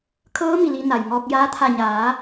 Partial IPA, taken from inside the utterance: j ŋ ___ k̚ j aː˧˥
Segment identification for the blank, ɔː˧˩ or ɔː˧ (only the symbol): ɔː˧